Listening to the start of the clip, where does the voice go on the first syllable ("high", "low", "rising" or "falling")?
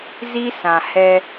high